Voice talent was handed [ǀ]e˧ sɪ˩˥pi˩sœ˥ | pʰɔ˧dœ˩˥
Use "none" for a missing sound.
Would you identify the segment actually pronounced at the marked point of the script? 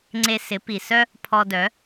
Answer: ŋ͡ǀ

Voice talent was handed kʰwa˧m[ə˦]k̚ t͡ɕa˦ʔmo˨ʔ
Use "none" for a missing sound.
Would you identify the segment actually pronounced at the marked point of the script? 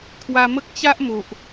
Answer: ə˦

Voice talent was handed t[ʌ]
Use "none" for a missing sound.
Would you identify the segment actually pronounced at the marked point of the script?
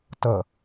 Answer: ə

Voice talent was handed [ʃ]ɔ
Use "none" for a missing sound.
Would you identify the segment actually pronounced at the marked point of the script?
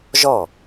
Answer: ʒ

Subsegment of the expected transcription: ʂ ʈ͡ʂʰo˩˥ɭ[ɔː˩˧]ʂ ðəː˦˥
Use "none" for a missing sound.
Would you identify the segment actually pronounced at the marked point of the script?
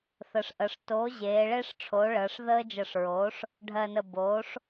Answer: əː˩˧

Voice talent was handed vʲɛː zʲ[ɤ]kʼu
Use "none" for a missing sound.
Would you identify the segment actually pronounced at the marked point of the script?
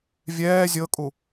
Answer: ɤ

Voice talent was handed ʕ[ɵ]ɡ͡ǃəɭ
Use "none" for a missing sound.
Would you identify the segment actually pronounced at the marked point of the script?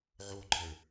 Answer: o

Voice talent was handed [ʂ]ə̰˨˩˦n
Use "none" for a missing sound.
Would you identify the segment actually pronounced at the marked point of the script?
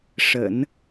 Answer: ʂ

